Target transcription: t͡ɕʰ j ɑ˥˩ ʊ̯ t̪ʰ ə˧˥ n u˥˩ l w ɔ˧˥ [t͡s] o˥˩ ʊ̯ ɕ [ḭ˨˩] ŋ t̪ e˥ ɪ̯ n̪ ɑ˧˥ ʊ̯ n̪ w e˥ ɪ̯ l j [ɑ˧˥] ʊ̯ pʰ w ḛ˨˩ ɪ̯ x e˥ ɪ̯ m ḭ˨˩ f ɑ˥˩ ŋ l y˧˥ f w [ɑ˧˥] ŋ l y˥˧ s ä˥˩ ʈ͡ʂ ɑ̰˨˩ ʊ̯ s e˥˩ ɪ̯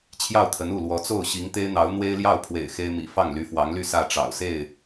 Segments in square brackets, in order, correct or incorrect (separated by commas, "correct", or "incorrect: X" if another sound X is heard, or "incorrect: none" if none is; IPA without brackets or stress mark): correct, incorrect: i˧˥, incorrect: ɑ˥˩, correct